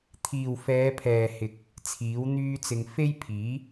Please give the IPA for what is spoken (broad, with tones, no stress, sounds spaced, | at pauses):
t̪ʰ iː˨ w f ɛː˨˧ pʰ ɛː˨ h ɪ˨ k̚ | t͡sʰ iː˨˥ w n̪ yː˥ t͡s ɪ˧ ŋ f e˥ j pʰ iː˨˥